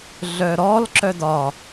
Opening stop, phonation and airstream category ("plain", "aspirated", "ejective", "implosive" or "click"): click